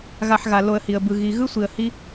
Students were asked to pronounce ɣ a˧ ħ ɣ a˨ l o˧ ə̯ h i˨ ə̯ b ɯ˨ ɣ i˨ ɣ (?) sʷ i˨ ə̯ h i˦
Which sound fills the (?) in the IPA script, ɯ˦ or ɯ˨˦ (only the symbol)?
ɯ˦